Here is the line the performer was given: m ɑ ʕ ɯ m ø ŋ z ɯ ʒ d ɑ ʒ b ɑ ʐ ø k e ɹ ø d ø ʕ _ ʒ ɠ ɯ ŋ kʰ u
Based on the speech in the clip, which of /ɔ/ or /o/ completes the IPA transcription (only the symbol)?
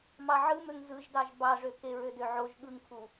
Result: o